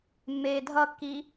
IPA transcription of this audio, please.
mː eː dʱ ʌ kː i

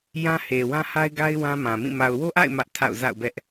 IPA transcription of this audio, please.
j ã˦ h e˨ w ã˦ h a˦ ɪ̯ ɡ a˦ ɪ̯ w ã˦ m ã˨ m ĩ˦˨ m a˨ ʊ̯ w o˦ ʔ a̰˦˨ ɪ̯ m ä˦ ʔ tʰ a̰˦˨ ʊ̯ z a̰˦˨ ʊ̯ b ɛ˦ ʔ

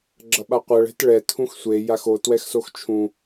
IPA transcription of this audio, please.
ɡ͡ǁ ʌ ɓ a qʷ ʌ ɭ ɛ̤ t ɭ ɛ tʰ ũ x sʷ e j a x o t w ɛ x s o x t͡ʃʰ ũ

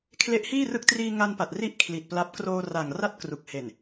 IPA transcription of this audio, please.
kʰ l e˦˥ ʔ h iː˥˩ r ɯ˦˥ k̚ t r iː˧ ŋ a˧ n p a˨˩ t̚ r i˥˩ ʔ kʰ l i˨˩ t̚ p l a˦˥ p̚ k r oː˧ r a˨˩ ŋ r a˥˩ t̚ k r u˨˩ k̚ h e˨˩ n

